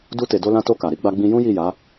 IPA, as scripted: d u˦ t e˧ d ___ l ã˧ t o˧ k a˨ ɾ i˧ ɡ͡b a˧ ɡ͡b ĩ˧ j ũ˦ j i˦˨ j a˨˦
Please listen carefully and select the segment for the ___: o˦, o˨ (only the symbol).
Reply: o˦